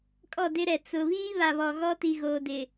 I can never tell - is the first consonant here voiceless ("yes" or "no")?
yes